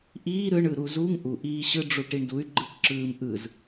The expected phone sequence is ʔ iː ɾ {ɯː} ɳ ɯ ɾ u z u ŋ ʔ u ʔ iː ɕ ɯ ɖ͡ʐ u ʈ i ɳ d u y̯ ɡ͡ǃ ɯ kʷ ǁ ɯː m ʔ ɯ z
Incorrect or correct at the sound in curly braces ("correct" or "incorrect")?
incorrect